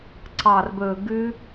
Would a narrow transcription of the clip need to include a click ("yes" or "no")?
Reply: yes